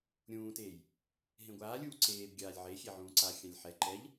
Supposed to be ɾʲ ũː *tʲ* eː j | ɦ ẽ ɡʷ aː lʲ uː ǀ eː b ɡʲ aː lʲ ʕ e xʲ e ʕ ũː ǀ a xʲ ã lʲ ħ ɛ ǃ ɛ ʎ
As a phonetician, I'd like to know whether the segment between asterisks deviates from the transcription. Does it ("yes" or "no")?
yes